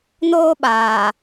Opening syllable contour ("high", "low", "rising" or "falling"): high